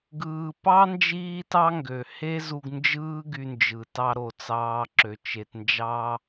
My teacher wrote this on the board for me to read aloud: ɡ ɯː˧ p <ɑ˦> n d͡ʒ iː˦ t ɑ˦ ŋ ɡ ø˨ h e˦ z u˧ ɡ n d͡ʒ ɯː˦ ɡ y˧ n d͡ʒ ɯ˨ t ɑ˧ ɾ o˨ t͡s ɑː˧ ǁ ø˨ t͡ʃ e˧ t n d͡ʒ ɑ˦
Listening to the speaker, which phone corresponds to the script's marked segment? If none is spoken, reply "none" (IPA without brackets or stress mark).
ɑ˦